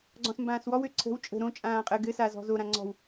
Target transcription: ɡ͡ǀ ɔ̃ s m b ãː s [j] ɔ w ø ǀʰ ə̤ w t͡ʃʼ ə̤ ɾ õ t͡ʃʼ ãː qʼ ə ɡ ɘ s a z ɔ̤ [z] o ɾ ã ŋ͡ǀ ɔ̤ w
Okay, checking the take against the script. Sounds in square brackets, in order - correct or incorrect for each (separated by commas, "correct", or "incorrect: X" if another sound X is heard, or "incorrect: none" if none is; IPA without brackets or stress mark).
incorrect: w, correct